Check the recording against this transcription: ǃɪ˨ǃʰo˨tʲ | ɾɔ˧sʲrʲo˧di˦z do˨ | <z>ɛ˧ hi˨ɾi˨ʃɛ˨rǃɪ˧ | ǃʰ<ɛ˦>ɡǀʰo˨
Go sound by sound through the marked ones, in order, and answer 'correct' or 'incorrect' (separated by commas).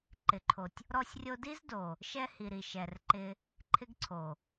incorrect, incorrect